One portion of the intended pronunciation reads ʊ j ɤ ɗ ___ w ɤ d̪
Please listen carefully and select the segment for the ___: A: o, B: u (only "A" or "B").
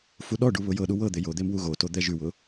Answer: B